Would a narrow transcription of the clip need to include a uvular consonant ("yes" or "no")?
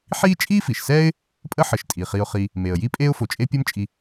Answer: yes